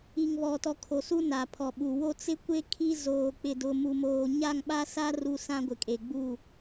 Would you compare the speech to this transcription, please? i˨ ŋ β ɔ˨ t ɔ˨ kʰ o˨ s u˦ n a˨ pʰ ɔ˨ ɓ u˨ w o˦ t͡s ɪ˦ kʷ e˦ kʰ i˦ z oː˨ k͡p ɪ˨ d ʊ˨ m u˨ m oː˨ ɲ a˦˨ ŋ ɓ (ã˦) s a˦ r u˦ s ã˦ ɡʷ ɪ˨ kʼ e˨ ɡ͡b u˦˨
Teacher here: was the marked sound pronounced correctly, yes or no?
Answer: no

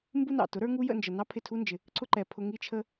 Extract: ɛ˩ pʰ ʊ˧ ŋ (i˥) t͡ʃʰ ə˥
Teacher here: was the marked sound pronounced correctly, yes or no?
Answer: yes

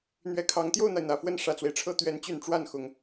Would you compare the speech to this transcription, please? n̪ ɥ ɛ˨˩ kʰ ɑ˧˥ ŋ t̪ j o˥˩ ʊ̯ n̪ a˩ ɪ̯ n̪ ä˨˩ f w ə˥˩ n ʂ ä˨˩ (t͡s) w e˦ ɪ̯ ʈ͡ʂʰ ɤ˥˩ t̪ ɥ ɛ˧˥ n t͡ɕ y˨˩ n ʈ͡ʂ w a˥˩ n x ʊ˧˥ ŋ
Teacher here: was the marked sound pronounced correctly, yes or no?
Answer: yes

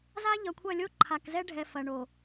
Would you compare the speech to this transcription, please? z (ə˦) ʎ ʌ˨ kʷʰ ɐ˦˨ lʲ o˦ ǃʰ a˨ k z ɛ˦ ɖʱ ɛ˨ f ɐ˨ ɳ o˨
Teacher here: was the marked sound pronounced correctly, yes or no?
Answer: no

